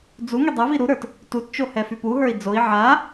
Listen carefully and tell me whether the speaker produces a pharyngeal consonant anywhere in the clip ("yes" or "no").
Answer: yes